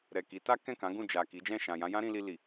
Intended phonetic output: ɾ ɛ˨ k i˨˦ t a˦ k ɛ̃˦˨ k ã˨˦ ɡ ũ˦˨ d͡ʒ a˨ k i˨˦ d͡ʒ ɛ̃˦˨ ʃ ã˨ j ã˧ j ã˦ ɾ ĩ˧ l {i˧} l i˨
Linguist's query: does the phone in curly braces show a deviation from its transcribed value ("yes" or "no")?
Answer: no